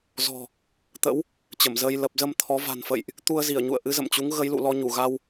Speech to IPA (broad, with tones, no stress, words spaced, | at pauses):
zɔ̤˨˩ | t̪ə̰˧˥w | t͡ɕə˧˩mzəː˧j lə˨˩p̚zə˧m t̪ʰɔ˨˦ va̤˨˩nfə̰˧˨jʔ | t̪u˧ə̯zi˧˩ə̯ɲṵ˧˨ə̯ ʔɨ˨˦zə̰˧˨mt͡ɕu˨˦ŋ ɣə˨˦jlṵ˧˨lɔ˧ ɲu˧˩ɣa˧w